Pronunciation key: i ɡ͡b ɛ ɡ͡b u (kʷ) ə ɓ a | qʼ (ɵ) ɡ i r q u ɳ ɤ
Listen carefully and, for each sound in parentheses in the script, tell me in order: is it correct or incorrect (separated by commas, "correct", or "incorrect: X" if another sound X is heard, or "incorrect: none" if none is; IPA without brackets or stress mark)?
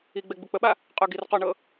incorrect: k͡p, correct